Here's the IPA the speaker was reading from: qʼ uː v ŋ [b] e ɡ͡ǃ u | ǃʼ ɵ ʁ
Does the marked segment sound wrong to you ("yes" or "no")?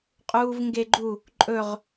yes